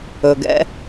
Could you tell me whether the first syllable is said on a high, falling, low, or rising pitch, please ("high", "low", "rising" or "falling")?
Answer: low